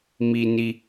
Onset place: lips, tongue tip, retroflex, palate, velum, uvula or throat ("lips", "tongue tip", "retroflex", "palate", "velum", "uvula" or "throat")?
lips